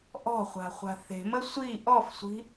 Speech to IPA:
ʔ ɔ̤ χʷ a̤ χʷ a̤ θ e̤ m ə sʷ i ʔ ɔ f sʷ i̤

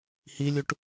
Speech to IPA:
h i lʲ u ʈ

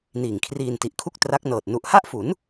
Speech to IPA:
n iː˨˩ ŋ kʰ r iː˧ n t i˨˩ ʔ kʰ u˥˩ k̚ t r a˦˥ k̚ n ɤː˨˩ t̚ n u˨˩ ʔ h a˥˩ ʔ f u˩˦ n

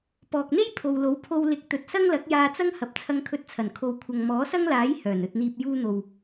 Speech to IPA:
p ɔː˨ k̚ n̪ e˥ j pʰ o˨ w l o˨˥ w pʰ o˧ w l ɪ˨˥ k̚ t̪ ɵ˨ t̚ s ɐ˥ ŋ l ɐ˨˥ k̚ j aː˧ t͡s ɐ˥ ŋ h ɐ˨ p̚ t͡sʰ ɐ˧ ŋ kʰ ɵ˧ t̚ t͡sʰ ɐ˨˩ n kʰ o˨ w kʷʰ ɐ˨ ŋ m ɔː˨˥ s ɐ˥ ŋ l aː˨˥ j h œː˨˩ n ɵ˨ t̚ n̪ iː˨ p̚ j uː˧ n̪ o˨ w

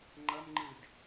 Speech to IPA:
ŋ͡ǃ ʌ m ŋ͡ǃ ɯ d

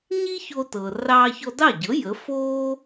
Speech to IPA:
ɲ i˥ ç o˧ t ɤ˩ r ɑː˧ ç ɔ˧ d ɑ˥˩ ɟ ɤ˩˥ j ə˩˥ f oː˥

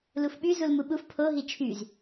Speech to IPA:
l u f ɓ y z u l m u ɓ u f pʰ o ɦ i t͡ʃʰ y z

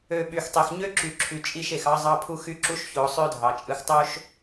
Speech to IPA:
ø˨ ɓ y˨ x tˤ e˨ x ɲ ø˦ ǁ y˨ ǁʰ y˨ t͡ʃʼ i˦˨ ʃ e˨ x ɑ˦ zˤ ɑ˦ pʰ u˦ x y˦ ǁ u˦ ʃ ç o˨˦ sˤ ø˦ dʱ ɑ˨ t͡ʃʼ ɯ˨ x tˤ o˦ ʃ

